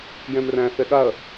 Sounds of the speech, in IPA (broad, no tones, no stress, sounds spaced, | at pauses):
j ɛ̃ m r æ̃ θ ɛ ɠ a ɐ̯